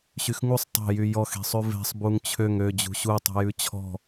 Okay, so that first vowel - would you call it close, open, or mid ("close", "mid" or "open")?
close